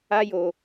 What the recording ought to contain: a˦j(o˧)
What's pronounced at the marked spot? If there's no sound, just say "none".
o˧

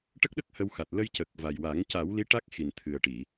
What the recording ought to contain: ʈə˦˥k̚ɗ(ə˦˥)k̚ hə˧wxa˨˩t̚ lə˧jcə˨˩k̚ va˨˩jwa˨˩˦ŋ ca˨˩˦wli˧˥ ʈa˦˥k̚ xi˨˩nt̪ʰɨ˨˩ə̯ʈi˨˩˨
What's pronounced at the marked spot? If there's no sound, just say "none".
ə˦˥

